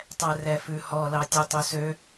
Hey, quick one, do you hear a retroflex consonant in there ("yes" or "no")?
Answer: no